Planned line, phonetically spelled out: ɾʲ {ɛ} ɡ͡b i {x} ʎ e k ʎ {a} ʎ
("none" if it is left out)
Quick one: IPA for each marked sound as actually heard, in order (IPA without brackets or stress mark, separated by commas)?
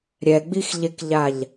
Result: ɛ, x, a